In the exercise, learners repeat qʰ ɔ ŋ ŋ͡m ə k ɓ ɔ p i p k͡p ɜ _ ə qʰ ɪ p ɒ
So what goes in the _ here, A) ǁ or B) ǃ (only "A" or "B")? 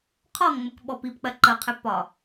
B